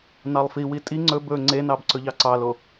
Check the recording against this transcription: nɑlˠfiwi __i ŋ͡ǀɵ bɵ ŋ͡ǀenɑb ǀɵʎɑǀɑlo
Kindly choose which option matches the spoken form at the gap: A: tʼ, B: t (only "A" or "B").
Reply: A